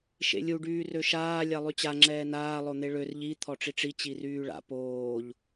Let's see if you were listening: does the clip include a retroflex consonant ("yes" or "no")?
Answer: yes